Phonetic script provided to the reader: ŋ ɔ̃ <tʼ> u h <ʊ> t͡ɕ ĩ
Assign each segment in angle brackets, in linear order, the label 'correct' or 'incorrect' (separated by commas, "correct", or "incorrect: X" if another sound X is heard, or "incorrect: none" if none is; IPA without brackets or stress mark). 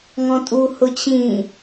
correct, correct